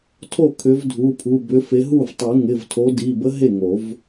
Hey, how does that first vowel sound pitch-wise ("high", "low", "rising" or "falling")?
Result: falling